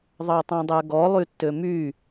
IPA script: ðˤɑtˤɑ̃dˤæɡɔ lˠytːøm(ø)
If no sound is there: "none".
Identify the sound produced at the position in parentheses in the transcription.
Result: y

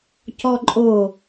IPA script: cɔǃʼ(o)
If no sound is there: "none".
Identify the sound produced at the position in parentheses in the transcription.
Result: o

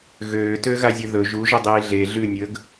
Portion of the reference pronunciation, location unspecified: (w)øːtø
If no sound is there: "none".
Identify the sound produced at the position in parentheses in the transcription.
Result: ɣ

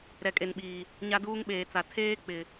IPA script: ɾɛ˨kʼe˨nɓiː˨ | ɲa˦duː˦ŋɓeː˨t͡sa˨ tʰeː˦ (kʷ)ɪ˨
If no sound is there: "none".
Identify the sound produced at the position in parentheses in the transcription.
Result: k͡p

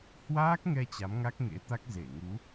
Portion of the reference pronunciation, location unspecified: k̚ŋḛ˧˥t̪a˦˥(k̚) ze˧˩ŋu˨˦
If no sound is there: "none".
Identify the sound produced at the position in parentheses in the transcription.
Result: k̚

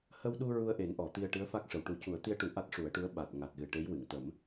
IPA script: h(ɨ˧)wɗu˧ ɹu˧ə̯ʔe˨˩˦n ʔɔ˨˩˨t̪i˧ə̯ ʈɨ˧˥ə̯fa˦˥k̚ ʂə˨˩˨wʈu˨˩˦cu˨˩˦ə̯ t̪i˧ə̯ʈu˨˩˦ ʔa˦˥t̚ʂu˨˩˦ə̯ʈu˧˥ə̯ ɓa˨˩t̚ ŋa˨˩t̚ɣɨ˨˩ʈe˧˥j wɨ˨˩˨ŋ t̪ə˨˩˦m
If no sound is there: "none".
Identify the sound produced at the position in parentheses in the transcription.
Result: ə˧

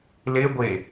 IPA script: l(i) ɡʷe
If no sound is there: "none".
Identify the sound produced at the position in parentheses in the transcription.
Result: e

